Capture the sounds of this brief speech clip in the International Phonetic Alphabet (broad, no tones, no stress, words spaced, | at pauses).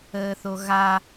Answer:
əːθoɣa